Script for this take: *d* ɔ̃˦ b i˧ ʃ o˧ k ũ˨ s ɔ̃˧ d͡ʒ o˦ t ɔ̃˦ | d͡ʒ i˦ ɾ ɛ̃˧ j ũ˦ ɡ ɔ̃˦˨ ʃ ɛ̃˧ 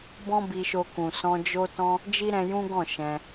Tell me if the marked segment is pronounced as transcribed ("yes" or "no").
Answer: no